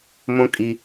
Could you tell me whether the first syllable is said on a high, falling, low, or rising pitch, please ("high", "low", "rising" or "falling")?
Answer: high